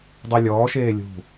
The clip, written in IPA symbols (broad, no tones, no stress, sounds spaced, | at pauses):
dˤ ɪ lʲ ɔː ʃ eː lʲ ṳ